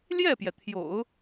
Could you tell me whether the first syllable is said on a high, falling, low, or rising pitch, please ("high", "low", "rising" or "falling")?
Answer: falling